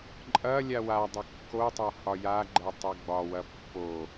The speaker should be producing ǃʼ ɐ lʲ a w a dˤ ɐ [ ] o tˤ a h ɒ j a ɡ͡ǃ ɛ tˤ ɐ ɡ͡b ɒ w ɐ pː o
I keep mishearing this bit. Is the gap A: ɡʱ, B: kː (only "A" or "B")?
B